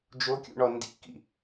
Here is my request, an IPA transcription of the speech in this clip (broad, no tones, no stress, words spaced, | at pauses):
d͡ʒokʲṵɳɔ ndḭkḭ